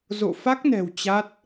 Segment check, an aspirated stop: absent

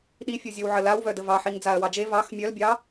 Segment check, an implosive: present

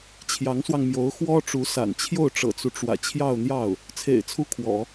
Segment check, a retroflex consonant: present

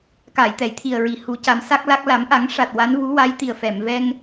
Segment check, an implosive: absent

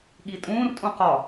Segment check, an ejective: present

